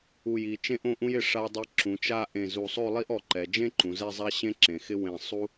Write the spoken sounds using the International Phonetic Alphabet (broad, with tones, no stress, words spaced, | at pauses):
u˧˩ji˩˧ t͡ʃẽ˥ʔõ˥˧ʔũ˥jɪ˧˩ ʂa˧dˤe˧ ǁũ˩˧t͡ʃa˥˧ ʔẽ˧˩zu˧˩sˤo˥˧lˠi˥ʔ ɔ˧ǃɛ˩˧ d͡ʒẽ˥ǃũ˩˧ zɛ˥˧zˤa˥ ɕẽ˥ǁẽ˩˧xɪ˥ wẽ˧˩ sˤu˥